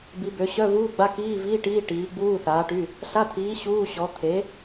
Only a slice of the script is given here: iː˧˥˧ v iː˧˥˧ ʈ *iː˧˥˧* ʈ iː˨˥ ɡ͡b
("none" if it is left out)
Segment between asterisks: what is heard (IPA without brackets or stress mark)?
iː˧˥˧